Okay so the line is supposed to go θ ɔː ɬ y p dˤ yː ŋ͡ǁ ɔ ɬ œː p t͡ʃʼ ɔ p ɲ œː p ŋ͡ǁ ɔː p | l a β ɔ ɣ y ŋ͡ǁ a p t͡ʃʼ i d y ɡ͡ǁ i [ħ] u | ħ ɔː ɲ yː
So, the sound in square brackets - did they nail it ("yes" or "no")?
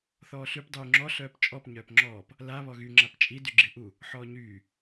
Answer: no